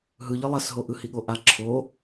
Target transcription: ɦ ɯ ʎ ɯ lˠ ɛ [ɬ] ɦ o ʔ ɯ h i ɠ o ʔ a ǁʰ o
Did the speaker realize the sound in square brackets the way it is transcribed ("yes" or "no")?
no